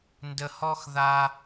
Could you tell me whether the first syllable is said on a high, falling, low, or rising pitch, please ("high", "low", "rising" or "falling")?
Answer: high